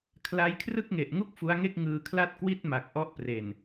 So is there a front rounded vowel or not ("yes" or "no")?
no